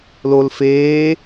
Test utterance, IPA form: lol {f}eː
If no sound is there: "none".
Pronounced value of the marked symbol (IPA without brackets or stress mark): f